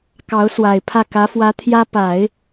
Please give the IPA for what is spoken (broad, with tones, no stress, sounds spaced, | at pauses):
k ɑ˧˥ ʊ̯ s w a˨˩ ɪ̯ pʰ ä˥˩ k ä˧˥ f w ä˧˥ t̪ʰ j ä˥ p a˨˩˦ ɪ̯